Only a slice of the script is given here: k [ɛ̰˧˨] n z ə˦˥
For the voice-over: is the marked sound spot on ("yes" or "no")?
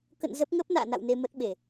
no